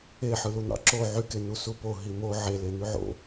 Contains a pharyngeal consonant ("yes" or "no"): yes